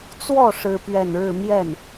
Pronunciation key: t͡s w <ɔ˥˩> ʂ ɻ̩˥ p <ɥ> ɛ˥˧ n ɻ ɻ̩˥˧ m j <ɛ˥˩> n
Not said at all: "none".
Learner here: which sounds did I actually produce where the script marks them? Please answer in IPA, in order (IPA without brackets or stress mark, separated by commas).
ɔ˥˩, ɥ, ɛ˥˩